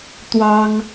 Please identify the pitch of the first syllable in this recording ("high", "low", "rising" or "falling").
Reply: high